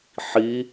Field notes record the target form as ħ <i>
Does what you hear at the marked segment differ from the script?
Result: no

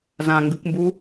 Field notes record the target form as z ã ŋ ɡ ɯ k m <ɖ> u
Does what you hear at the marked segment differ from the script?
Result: yes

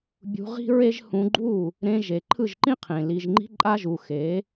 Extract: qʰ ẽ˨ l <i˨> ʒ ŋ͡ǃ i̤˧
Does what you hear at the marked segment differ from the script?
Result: no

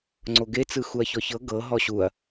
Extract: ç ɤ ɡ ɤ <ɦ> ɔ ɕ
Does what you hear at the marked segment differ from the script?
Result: no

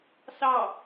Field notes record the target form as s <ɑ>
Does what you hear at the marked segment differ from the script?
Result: no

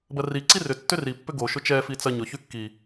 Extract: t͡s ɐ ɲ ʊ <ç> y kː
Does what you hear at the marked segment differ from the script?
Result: no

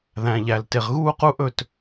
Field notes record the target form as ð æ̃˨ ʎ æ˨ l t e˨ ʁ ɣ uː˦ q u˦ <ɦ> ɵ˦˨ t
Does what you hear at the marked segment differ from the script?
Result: yes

